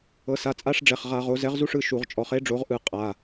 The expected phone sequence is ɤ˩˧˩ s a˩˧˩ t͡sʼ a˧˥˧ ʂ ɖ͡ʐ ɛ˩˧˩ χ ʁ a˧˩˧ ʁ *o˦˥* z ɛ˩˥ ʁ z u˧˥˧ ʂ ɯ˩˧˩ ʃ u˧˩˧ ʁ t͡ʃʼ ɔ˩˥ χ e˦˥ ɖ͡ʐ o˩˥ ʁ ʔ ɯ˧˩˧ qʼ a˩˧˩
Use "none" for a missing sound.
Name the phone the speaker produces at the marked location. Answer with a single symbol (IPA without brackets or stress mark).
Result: o˩˥